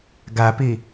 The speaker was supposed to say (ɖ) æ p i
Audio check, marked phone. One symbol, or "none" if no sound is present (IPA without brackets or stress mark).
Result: ɡ